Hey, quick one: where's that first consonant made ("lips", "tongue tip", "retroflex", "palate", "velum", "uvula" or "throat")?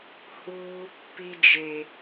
throat